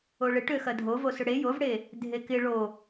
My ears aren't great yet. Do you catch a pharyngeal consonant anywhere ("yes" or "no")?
no